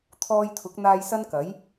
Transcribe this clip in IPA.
t̪ʰ ɔː˧ j t̪ʰ ʊ˨˥ k̚ n̪ aː˧ j s ɐ˥ n k ɐ˨˥ j

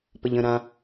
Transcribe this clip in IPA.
p ə ʎ ə̃ ɾ ã

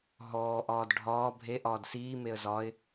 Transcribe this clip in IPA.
ɦ ɔː ʔ ɒː d ɖʱ ɒː bʱ e ʔ ɒː d s iː m e ə̯ z ɒ ɪ̯

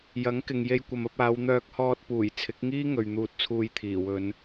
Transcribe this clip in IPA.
j ɐ˨˥ ŋ k ɪ˨ ŋ j e˧ j kʷ ɐ˨ m ɐ˧ p̚ aː˨˧ w n̪ œː˧ k̚ h ɔː˧ t̚ p uː˨˩ j t͡sʰ ɪ˨˥ k̚ ŋ iː˥ ŋ ɵ˨ ɥ n̪ uː˧ t̚ t͡sʰ uː˧ j t̪ʰ iː˨˩ w ɵ˨˧ n

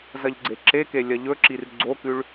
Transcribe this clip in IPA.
z ɐ ʎ ɡ͡ǀ e ǁ e k e lʲ ɐ ʎ ɵ ǁ i r ɡ͡ǀ o k ʉ ɭ

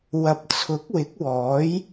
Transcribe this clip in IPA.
w ɐ˨˥ p̚ t͡sʰ ʊ˨˥ k̚ w ɪ˨˥ k̚ w ɔː˨˥ j

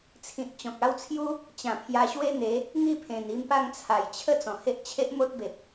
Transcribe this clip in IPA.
t͡sʰ ĩ˨ t̚ t͡ɕ ɔ̃˨ k̚ a˦ w t͡sʰ j u˦ | t͡ɕ ã˨˩ pʰ j a˧ ɕ w e˦ n̪ e˨˦ | ŋ i˥˧ pʰ ẽ˨˩ n i˧ m p a˥˧ ŋ t͡sʰ a˨˩ j t͡ɕʰ ə˥˧ t͡s ɔ̃˨˩ h e˦ ʔ t͡ɕʰ e˦ ʔ m o˦ t̚ b e˨ p̚

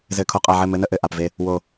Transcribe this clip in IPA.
z ɘ˨ kʰ o˨ qʼ a˨ ʕ ɘ˦˨ m ɘ˦ n ə˦ ʔ ɘ˨ ʔ a˨ p v e˦ | w o˨

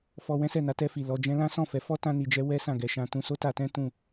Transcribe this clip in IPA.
f ɔ˧ w ɛ̃˦ s ɛ˦˨ n a˨˦ t ɛ˧ f i˨ l ɔ˨ d͡ʒ ɛ̃˧ l ã˦ s ɔ̃˦˨ f ɛ˨˦ f ɔ˦ t ã˦ n i˧ d͡ʒ ɛ˦ w ɛ˦ s ã˦˨ ɡ ɛ˧ ʃ ã˧ t ũ˧ s o˦ t a˧ t ɛ̃˦ t ũ˦˨

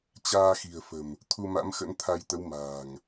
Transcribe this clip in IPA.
t͡ɕ aː˧ x i̤˨˩ ə̯ f ə̤˨˩ m | t̪ʰ u˧ m a̰˧˥ m x ə̰˧˥ n t̪ʰ a˧ j t̪ ə˨˦ w m a̤ː˨˩ ŋ

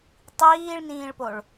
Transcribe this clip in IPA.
tˤ iː ɭ n ĩː ɭ p o ɭ

